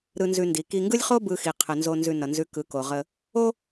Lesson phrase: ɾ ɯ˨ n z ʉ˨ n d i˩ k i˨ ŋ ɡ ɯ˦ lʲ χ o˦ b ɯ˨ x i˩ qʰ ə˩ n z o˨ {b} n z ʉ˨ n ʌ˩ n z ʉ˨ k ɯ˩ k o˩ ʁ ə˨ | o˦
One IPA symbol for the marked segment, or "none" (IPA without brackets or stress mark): none